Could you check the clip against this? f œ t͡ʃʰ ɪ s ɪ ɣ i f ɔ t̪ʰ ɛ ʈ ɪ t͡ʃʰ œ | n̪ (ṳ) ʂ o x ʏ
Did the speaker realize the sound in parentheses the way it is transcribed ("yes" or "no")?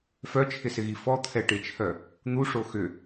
no